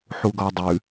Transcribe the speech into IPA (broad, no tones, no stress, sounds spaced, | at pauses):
ħ u ɡ ɔ dˤ ʉ